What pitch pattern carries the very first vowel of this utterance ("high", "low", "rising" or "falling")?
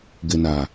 low